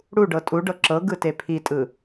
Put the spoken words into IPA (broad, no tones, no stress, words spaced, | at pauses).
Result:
ɽuɖɤ tʼuɖɤ ǁɤɡɯte pʰitʼɯ